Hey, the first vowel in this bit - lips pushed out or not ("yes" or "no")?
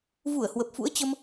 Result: yes